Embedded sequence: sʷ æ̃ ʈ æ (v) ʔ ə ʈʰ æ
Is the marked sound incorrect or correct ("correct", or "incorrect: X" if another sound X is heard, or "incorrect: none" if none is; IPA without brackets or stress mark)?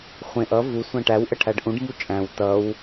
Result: incorrect: w